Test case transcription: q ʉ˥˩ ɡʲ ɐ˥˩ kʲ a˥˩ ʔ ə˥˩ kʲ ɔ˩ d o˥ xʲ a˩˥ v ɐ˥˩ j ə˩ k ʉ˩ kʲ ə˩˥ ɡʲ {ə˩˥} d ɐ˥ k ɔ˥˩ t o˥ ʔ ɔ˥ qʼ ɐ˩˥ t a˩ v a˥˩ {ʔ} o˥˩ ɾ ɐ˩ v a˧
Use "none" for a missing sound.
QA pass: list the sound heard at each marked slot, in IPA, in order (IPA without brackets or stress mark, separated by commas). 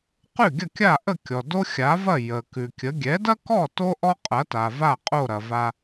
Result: ɛ˩˥, qʼ